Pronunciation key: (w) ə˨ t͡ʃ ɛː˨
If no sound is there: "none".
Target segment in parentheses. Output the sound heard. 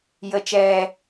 j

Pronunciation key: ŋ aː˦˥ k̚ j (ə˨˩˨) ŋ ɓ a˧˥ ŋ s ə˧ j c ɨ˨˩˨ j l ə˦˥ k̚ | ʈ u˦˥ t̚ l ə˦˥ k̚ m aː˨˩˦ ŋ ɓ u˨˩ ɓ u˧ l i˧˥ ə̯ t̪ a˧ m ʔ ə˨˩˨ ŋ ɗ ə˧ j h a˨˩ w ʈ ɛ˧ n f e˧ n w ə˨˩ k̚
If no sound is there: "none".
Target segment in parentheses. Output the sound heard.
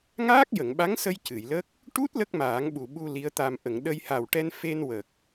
ə˨˩˨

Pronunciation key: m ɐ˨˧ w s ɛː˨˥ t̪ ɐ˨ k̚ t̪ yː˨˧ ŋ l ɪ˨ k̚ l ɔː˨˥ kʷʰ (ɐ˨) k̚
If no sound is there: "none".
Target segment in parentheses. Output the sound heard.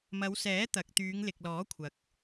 ɐ˨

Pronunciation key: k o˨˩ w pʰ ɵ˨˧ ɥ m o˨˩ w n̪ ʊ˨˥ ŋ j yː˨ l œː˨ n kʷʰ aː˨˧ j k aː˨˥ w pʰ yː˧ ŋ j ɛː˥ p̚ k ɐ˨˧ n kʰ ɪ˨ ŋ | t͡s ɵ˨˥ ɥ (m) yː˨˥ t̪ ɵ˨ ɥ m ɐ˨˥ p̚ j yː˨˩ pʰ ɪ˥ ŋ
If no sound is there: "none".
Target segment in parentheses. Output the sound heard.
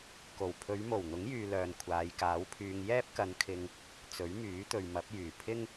m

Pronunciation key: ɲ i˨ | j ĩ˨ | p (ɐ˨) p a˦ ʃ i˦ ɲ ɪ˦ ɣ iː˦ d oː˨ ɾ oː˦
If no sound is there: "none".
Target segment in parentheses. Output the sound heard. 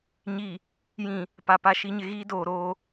a˨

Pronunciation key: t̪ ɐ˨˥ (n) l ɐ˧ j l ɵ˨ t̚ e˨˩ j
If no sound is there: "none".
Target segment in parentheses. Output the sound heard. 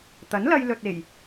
n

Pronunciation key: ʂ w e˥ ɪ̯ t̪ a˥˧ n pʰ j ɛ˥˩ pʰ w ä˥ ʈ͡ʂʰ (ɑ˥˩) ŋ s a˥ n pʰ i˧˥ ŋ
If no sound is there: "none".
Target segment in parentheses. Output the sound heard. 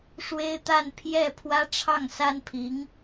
ɑ˥˩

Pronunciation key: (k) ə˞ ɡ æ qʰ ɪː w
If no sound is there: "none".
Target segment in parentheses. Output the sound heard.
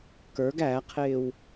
k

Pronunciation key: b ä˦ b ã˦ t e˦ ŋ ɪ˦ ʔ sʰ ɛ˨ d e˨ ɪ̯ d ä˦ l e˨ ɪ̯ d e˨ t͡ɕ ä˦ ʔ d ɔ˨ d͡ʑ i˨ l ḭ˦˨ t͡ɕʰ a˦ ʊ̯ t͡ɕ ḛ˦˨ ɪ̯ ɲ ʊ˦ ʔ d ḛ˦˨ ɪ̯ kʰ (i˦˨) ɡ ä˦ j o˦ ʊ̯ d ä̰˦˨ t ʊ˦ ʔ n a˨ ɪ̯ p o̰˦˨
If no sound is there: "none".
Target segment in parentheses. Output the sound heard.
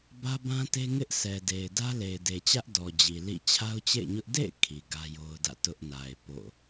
i˨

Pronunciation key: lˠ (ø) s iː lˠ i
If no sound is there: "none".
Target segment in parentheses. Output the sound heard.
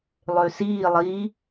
ø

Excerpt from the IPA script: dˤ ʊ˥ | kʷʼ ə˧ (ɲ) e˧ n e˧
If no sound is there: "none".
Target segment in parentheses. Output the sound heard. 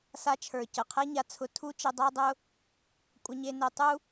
ɲ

